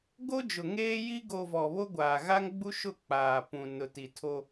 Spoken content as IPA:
ɡ o˦ d͡ʒ ʊ˨ ŋ eː˦ j i˦ ɡ o˨ v ɔ˨ β o˦ ɡʷ aː˨ ɣ a˦ ŋ ɡ͡b u˦ ʃ ʊ˦˨ k͡p aː˨ p ũ˨ n ʊ˨ t i˨ tʰ o˦

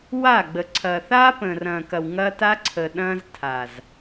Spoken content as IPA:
w a˦˨ ɡ͡b ə˨ ǀʰ ɐː˨ θ aː˦ p ə̃ː˨ r ɐ̃ː˨ k ɐ˨ w ŋ ɐː˦ t a˦ ǀʰ əː˨ ɗ ɐ̃ː˦ z tʰ a˨ z

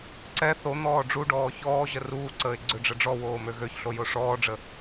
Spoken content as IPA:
ǀ ɛ θ o n̪ ɔː ɖ͡ʐ u ɖ ɔː ç ɔː ʑ ə r uː ǀ əː ɪ̯ ɡ͡ǀ ø ɖ͡ʐ ə ɖ͡ʐ ɔ w oː m ø ɣ ø ç ɬ o j o ʂ ɔː ɖ͡ʐ ə

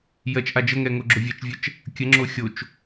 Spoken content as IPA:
j ɜ t͡ʃ ʔ a d͡ʒ ə ŋ ɛ ŋ o ɡ͡ǁ o vʲ ɛ t͡ʃ vʲ ɜ t͡ʃ | kʲ ə ŋ͡ǁ o xʲ o t͡ʃ

